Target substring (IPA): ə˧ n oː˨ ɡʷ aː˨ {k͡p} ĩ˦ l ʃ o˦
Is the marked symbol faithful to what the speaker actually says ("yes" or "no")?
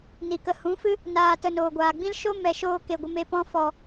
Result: no